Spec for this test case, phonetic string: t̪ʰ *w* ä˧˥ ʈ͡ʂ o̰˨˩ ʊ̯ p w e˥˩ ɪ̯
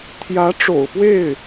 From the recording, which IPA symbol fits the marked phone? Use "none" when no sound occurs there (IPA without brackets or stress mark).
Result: j